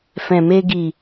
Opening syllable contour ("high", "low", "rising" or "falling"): low